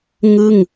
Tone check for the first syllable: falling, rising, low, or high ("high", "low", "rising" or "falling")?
falling